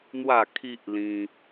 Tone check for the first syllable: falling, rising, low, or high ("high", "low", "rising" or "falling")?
falling